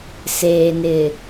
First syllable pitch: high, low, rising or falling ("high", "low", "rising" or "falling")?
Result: low